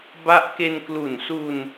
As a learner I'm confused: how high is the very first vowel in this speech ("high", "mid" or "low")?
low